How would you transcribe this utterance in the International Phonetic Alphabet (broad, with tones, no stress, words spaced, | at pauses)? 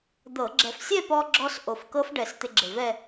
d̪ɤ˧˩˧ ɡ͡ǁɛ˨˩f sʲɛ˥˧pɔ˧ɡ͡ǁɔ˧s ʔo˨˩fkɤ˦˥fɖɛ˨˩s t̪ɪ˧ɡ͡ǁɪ˨˩vɛ˥˧